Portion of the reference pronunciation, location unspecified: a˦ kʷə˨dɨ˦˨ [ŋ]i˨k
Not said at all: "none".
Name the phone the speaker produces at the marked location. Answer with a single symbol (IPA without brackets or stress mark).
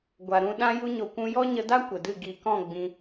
ɡ